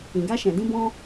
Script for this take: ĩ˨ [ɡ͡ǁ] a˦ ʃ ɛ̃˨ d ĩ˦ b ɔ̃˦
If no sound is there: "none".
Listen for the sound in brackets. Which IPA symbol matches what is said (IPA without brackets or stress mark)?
ɡ